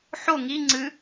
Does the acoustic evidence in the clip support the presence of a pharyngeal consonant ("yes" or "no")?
yes